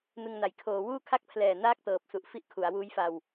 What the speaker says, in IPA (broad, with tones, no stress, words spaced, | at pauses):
nɯ˧ŋna˩˦j kʰoː˩˦ wuː˥˩kʰa˥˩k̚pʰlɛː˨˩ naː˥˩k̚tɤː˨˩p̚su˨˩ʔ fi˦˥ʔkʰu˩˦a̯wuː˦˥jfa˧w